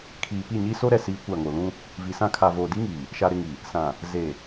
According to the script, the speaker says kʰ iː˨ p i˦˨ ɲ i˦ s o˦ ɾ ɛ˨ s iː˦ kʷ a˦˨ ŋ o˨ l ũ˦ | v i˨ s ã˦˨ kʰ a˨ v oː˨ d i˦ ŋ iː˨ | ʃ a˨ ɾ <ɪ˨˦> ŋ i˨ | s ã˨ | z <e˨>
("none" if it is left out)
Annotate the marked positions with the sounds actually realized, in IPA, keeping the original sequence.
ɪ˦˨, e˨

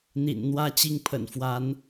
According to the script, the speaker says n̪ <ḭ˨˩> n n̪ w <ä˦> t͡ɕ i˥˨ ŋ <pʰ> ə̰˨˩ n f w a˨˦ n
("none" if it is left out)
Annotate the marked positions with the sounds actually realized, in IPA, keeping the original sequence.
ḭ˨˩, ä˥˨, pʰ

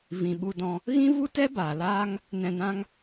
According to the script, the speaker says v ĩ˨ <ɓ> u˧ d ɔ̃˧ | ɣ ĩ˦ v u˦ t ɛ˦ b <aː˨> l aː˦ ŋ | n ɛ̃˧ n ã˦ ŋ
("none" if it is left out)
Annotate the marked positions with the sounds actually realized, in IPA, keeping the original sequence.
ɓ, aː˨

